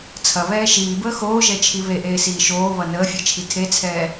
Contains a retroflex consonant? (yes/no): no